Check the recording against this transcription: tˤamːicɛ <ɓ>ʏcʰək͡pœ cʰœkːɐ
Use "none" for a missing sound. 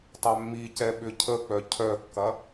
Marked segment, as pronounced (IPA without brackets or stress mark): ɓ